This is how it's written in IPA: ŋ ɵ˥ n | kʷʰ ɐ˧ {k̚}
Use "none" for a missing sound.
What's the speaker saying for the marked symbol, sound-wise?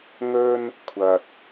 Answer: t̚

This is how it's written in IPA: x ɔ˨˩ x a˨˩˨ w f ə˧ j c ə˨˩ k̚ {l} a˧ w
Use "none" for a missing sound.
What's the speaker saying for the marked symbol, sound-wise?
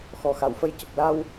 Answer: l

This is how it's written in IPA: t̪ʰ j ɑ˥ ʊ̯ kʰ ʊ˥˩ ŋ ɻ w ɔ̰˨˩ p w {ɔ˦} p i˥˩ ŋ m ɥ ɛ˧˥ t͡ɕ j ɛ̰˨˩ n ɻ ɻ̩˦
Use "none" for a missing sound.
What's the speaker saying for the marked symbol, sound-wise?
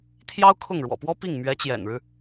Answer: ɔ˥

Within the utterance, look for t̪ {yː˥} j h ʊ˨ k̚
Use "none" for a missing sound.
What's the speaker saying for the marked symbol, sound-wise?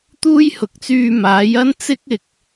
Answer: uː˥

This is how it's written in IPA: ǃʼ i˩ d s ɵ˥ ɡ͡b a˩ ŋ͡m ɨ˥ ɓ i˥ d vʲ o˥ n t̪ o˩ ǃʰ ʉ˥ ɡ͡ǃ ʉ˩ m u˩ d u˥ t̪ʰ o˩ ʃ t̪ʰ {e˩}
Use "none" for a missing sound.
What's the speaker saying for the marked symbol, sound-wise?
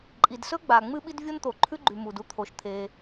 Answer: e˩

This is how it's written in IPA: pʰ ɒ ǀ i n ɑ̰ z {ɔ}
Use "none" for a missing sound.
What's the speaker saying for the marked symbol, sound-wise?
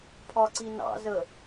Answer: ə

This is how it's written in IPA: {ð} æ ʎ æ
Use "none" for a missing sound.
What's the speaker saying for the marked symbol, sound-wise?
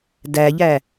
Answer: d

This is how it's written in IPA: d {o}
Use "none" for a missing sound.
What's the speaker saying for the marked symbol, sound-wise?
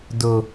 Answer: o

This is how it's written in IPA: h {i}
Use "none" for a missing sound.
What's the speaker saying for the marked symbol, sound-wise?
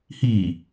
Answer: iː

